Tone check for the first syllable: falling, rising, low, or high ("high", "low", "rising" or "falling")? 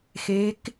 rising